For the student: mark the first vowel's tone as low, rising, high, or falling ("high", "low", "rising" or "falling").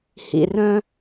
low